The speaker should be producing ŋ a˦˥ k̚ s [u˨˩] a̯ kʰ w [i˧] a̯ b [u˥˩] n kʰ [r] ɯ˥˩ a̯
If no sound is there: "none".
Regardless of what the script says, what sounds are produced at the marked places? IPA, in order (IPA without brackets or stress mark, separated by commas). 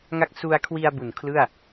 u˧, i˧, u˨˩, l